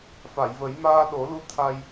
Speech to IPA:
fa˨˩˨jvə˨˩˦j maː˧ɗo˨˩˦ lu˧t̪ʰa˧j

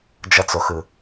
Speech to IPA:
d͡ʒʌt͡soxɯ

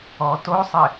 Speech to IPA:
ɔ tosˤɪ

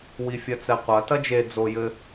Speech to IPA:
wifʲɐt͡sɛqʷɐ tɐd͡ʒe d͡zojɘ

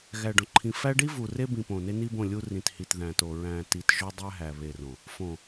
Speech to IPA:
ɣæ˨ɖõ˨ǃʰĩ˨fæ˦ ɖi˦ vu˨ re˦ bĩ˨ põ˨ne˦ni˦bõ˦˨ lʲu˦ rĩ˨thi˨t ðæ̃˨to˨ ɹæ̃˨ ti˨t ʒo˦dˤæ˦ɦæ˨ βe˨rõ˨ | fõ˨

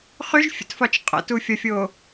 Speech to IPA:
χyʒfʲə̰tfɒt͡ʃ qʼə̰tufʲɒfʲo

